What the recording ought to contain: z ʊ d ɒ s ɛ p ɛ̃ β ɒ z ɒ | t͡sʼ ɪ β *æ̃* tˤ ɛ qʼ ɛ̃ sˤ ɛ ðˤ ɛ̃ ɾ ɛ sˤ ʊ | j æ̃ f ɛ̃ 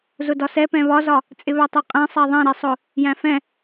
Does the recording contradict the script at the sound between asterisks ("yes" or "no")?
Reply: yes